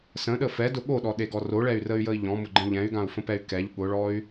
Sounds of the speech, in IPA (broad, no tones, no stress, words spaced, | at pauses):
sə̃ɗə fɛdʊ ɠoɗɔɗeɡɔ roɭɛy̯rəy̯jəi̯ ʎɔ̃mʊɡ͡ǃə̃ ʎɛ̃y̯ɡãu̯fə̃pɛy̯ kɛʎ ɠʊɭɔy̯